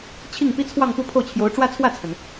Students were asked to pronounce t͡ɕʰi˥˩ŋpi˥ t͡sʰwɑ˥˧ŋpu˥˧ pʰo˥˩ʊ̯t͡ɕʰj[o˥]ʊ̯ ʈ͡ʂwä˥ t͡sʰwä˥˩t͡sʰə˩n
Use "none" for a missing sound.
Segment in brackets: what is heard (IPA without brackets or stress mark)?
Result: o˧˥